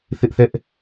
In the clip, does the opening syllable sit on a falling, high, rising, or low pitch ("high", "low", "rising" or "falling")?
high